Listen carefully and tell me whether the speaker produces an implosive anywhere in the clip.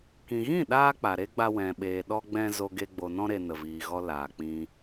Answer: yes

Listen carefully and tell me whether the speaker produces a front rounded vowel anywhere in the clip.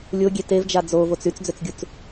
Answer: yes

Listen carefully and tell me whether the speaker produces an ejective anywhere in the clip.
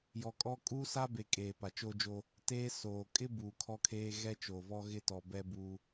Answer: yes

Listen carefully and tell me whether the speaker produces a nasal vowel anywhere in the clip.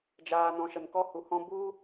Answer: yes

